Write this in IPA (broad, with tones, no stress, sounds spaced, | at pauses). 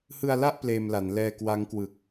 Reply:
h ɯ˧ a̯ l a˥˩ ʔ p l eː˧ m l a˩˦ n l ɛː˧ k w a˦˥ ŋ k w ɯ˨˩ k̚